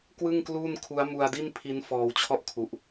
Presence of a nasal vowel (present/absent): absent